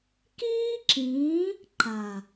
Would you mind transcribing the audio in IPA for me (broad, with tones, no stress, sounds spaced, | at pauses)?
k iː˦ ǁ ĩː˨˦ | ǃ a˨